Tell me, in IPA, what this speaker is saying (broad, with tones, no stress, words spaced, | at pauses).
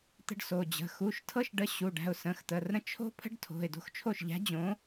t̪ə̤˦ɖso˩˧˩d͡ʑə̤˩˧˩ xu˩˧˩ʃtʰɤ˦ʃɖə˨˥ ɕu˩˧˩ ɖæ̤˩˧˩ʊ̯sə̃˩˧˩xt̪ə˩˧˩rɾə̃˦ t͡ʃʰo̤˦pʰə̤˦ɖ tʰo̤˩˧˩ɪ̯do̤˦xt͡ʃʰo˥˩ʃʎæ̤˨˥ d͡ʑõ˨˥